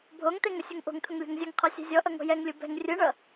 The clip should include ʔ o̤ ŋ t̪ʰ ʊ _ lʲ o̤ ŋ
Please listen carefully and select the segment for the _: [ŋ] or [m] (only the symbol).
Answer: ŋ